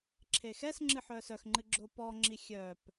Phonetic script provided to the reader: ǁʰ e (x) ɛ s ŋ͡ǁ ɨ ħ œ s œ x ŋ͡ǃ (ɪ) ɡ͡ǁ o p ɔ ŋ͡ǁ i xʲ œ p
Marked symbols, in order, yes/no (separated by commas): yes, no